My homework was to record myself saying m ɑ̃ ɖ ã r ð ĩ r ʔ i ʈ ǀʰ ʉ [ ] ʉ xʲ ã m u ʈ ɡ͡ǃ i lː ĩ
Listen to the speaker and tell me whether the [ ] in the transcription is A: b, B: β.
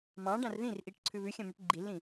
B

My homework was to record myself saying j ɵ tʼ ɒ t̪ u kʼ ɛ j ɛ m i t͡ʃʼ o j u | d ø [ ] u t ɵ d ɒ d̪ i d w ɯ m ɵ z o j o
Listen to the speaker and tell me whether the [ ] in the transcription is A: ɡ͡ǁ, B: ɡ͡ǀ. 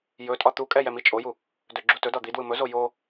A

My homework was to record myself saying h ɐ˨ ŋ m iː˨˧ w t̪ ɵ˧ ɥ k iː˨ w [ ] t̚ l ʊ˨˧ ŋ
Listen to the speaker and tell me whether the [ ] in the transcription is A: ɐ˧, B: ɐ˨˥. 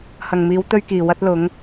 A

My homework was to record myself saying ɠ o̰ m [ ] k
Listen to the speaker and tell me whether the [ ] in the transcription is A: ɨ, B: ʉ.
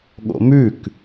B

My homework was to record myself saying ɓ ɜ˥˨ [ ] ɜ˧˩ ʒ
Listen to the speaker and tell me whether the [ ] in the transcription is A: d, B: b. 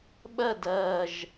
A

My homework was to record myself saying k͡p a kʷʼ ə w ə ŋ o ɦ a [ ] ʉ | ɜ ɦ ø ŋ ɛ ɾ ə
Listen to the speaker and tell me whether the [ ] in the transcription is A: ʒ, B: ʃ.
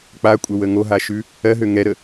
B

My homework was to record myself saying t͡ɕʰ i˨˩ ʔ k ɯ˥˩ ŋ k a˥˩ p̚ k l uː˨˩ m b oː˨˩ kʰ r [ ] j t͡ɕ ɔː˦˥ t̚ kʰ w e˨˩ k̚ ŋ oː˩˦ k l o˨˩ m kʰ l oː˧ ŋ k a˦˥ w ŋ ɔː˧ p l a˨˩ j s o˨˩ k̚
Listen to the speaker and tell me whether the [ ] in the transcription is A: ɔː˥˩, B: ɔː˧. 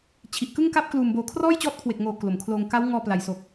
A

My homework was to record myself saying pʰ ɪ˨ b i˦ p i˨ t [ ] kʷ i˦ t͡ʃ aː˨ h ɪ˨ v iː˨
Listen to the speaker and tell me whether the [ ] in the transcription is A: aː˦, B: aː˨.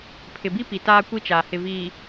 A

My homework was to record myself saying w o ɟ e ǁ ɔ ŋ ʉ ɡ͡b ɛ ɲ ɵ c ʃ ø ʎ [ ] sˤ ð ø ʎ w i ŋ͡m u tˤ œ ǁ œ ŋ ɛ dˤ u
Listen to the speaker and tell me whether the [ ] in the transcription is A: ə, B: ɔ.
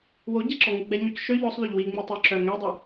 B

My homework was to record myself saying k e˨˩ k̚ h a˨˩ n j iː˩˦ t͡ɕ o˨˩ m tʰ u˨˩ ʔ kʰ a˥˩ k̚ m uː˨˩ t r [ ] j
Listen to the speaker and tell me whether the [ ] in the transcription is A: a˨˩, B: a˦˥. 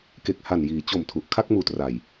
A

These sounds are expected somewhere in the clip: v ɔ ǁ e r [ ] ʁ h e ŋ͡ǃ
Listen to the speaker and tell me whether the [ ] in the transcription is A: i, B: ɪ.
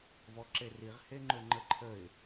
A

